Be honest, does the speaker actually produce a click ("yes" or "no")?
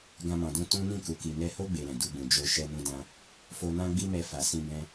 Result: no